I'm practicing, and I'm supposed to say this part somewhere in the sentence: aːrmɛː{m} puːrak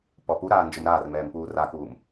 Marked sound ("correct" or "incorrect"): correct